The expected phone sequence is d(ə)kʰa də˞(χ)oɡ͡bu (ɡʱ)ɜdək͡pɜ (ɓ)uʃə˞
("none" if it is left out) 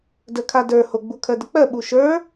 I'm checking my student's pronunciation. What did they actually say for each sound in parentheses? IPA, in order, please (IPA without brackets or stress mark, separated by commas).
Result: ə, h, kʰ, ɓ